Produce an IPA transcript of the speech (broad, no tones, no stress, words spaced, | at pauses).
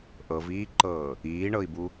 ʔɤviːǃɤː | iːɳɤi̯bu